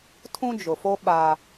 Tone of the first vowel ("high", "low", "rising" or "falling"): high